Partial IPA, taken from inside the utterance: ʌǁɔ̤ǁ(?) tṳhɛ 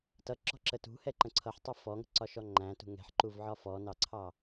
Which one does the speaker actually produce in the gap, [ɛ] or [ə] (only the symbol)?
ə